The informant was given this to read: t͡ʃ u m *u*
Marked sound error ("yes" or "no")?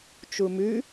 yes